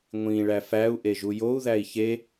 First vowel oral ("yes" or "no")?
no